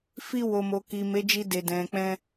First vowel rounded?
no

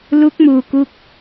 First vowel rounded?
yes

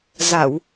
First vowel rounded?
no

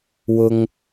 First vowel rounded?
yes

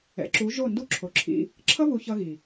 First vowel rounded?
no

